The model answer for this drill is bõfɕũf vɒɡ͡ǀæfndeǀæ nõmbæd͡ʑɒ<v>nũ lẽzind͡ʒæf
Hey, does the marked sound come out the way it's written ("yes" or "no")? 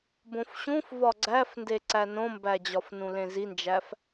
no